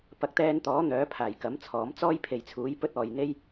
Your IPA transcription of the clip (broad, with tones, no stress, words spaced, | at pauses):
pɐ˨k̚t̪ɛː˧nt̪ɔː˨˥ n̪œː˨˥pʰaː˨˩jkɐ˨˥mt͡sʰɔː˨˥m t͡sɔː˥jpʰe˨jt͡sʰuː˨˥j pɵ˥t̚ɔː˨jn̪e˥j